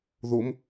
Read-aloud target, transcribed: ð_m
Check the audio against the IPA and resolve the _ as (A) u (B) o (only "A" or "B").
B